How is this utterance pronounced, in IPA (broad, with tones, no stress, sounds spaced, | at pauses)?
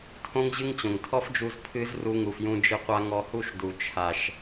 tʰ õ˦ ŋ ʑ ɨ˦ ŋ t͡ɕ õ˨ ŋ tʰ ɔ˦ f d͡ʒ u˧ z pʰ ɨ˦ z r u˧ ŋ u˨ f j ũ˧ d͡ʒ ɨ˧ qʷ a˧ ŋ ɔ˧ h u˦˨ ʃ d u˨ t͡ʃʰ a˨ ʃ